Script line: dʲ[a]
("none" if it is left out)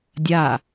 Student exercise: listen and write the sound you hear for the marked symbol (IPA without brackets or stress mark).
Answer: a